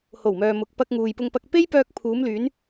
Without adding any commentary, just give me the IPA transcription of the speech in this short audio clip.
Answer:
h o˨˩ w m œː˨ m ʊ˨ k̚ p ɐ˧ k̚ ŋ uː˨ j p ʊ˧ ŋ p ɐ˧ k̚ p e˥ j p œː˧ k̚ pʰ uː˨˧ m l yː˨˧ n

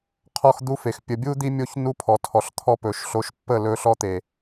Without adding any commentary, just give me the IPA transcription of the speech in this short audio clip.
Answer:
qʰ ɔ˦ x d̪ u˦ f e˨ x pʲ ə˨ bʲ u˦ d̪ i˦ mʲ o˦ ç n u˦ pʰ ɔ˨ tʰ ɔ˨ ɬ t̪ʰ ɔ˦ p ɵ˨ ʃ ɬ o˨ ʃ pː ə˦˨ l ɵ˦ ɬ ɔ˦ t̪ e˨

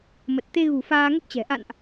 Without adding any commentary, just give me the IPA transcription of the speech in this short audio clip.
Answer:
m ə˨˩ t̚ t̪ e˧ ɣ ṳ˨˩ f aː˧ ŋ ə˦˥ p̚ t͡ɕ ɛ̤˨˩ ʔ a̰˧˨ n ʔ

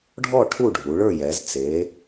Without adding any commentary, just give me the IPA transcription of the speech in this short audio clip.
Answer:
ɖʱ ɔ˥˨ ʈʰ u˥˨ ɖʱ u˩˧ ɭ ə˞˥˨ j ɛ˩˧ z t͡s e˩˧

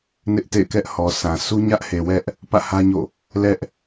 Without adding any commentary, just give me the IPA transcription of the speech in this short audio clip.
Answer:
n ɪ˦ ʔ t ḛ˦˨ ɪ̯ k ɛ˦ ʔ h ɔ˨ s ã˨ sʰ u˦ ɲ ä˦ ʔ h e˨ w ɛ˦ ʔ | p ä̰˦˨ h ä˦ ɲ o̰˦˨ | l ɛ˦ ʔ

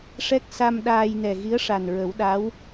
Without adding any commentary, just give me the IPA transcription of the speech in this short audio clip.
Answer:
ʂ ɛ˦˥ k̚ s a˧ m ɗ aː˧ j n ɛ˨˩ ɣ i˧˥ ə̯ ʂ a˨˩ n ɹ ə˨˩˦ w ɗ a˧˥ w

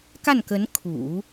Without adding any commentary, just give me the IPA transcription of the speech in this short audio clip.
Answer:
k a˥˩ n k ə˧˥ n kʰ ṵ˨˩˦

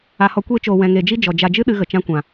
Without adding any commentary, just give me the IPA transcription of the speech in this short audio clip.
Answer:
a˧ h ɔ˧ kʷ eː˦ t͡ʃ oː˧ w ɛ̃˧ ŋ e˧ d͡ʒ i˦ d͡ʒ ɔ˨ d͡ʒ a˧ d͡ʒ ɨ˦ ɗ ɨ˧ ɣ ə˨ t͡ʃ ã˧ kʷ ã˨

